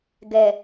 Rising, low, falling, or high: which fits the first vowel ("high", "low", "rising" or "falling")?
low